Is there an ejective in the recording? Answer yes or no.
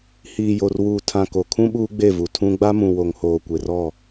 no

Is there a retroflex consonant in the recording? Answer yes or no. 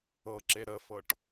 yes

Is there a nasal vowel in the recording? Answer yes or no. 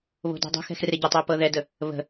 no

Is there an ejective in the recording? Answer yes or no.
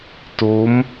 no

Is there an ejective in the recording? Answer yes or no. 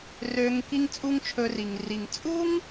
yes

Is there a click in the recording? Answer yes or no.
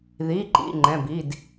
yes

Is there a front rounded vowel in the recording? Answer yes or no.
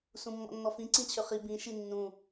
yes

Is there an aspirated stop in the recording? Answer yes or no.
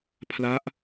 yes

